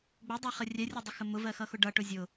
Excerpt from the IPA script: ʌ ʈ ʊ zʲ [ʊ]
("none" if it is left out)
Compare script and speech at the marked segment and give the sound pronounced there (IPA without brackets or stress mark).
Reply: ʊ